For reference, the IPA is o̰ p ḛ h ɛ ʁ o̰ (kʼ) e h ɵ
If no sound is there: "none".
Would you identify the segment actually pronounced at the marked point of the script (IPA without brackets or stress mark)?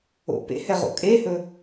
kʼ